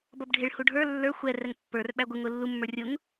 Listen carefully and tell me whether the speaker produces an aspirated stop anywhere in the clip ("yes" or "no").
no